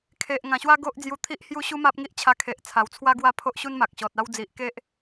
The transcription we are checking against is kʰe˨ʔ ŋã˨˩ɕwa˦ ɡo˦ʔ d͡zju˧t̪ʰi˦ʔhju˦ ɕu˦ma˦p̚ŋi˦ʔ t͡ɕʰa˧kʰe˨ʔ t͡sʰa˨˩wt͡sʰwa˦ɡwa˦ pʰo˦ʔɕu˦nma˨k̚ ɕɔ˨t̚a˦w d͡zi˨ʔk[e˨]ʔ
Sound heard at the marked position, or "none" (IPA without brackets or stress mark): e˦